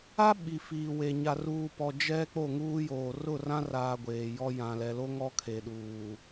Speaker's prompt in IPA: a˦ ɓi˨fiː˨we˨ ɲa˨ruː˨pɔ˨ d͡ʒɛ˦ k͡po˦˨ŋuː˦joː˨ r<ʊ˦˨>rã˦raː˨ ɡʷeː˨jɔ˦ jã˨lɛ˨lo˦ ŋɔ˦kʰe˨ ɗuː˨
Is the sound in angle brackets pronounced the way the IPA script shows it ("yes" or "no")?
yes